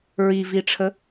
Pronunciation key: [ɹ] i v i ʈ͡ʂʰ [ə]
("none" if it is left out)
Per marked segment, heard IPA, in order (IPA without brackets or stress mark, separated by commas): ɹ, ə